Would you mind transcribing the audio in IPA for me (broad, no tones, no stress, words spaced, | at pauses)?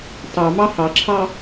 tɑmɑ hɑǁʰɑ